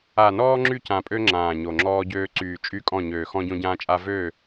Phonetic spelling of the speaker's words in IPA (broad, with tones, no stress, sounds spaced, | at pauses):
a˨ n ɔː˦ ŋ͡ǁ y˦˨ c ã˨ pʼ ø˦ ŋ͡ǁ ãː˨ ɲ o˨ ŋ͡ǁ ɔː˦ ɟ øː˦ ǀ yː˨ t͡ʃʼ y˦˨ kʼ ɔ̃˦˨ ɲ øː˨ x ɔ̃˦ ɟ õ˦ ɟ ãː˦ t͡ʃʼ a˦ v ø˦˨